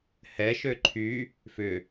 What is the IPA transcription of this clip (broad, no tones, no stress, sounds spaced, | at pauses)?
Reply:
h ɛ ʃ ø ǃʰ y | f ʏ